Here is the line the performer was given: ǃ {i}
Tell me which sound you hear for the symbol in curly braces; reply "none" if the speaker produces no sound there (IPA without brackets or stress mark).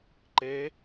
e